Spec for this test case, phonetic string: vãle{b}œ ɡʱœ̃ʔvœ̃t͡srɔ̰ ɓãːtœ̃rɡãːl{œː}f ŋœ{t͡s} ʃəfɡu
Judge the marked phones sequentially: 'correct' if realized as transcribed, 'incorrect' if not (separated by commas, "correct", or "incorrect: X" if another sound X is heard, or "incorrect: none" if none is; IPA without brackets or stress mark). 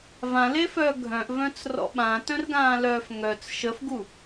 incorrect: f, correct, correct